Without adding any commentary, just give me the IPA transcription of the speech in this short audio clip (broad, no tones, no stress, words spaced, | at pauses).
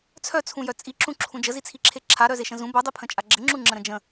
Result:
t͡sʰœt͡sʰũjœ t͡sʼiǁũǁʰũ d͡ʒəzit͡sʰiǁʰe ǁʰaɾœzeʃə̃ zũ bœdˤepʰə̃t͡ʃʼa ɡ͡ǁəŋ͡ǁuŋ͡ǁə̃ɾə̃ d͡ʒə̃